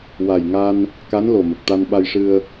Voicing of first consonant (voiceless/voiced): voiced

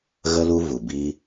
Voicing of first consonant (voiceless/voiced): voiced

